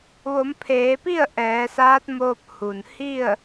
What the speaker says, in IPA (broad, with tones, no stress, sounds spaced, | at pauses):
ʋ o˩˧ m pʰ eː˩˧ p i˥˨ ə̯ ʔ ɛː˩˧ s aː˧˥ t̚ m oː˧ p̚ h u˩ n h i˥˨ ə̯